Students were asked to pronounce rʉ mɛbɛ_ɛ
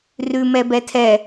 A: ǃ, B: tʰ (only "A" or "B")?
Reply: B